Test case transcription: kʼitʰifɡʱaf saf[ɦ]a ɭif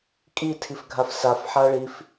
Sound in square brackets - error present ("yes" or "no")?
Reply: yes